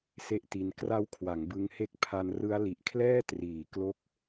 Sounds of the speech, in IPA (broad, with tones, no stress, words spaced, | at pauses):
se˦˥ʔti˧n kra˦˥w kʰwa˩˦ŋbɯ˧ŋhe˦˥k̚ pʰa˧nrɯ˦˥a̯ li˨˩ʔkʰlɛː˥˩ triː˨˩ klo˥˩k̚